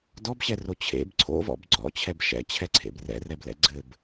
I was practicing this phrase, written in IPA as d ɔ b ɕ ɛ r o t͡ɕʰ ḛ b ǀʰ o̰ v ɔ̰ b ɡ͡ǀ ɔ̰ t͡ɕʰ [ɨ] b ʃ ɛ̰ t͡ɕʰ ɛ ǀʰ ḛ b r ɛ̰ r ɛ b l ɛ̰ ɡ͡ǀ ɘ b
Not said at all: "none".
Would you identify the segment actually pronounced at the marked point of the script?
ɛ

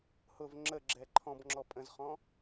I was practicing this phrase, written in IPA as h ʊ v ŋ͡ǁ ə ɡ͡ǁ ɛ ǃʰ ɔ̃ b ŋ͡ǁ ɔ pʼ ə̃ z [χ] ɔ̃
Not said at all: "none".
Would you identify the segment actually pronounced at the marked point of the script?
χ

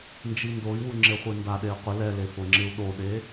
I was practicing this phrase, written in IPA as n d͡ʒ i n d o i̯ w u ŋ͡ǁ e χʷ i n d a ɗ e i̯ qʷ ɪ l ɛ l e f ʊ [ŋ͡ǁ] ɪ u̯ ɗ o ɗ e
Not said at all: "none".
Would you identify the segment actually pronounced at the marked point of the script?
ŋ͡ǁ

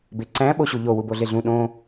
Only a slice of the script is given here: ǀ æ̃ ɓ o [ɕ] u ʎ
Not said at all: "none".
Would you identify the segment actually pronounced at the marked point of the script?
ɕ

